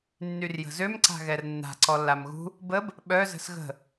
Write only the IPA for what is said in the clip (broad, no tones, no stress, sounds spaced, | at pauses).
nː y r j ə̤ z ø m ǀ a̤ ɣ ɛ r nː a̤ ǀ ɔ lː a m ɣ ṳ | b ə b | ɓ œ z ə̤ s ɣ ə̤